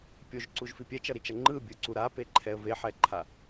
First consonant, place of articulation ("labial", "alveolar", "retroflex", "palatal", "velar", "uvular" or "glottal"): labial